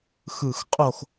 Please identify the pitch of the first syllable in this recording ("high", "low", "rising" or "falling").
falling